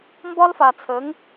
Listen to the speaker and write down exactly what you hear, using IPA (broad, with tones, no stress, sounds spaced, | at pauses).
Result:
m b ɒ˦ l f a˨ t͡sʰ ə˨˦ ŋ